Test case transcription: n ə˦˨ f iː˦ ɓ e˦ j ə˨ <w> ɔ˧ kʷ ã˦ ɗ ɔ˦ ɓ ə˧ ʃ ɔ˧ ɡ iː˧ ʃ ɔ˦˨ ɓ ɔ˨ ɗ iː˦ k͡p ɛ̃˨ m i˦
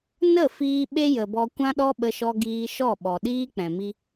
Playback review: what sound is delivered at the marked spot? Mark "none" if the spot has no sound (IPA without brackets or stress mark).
b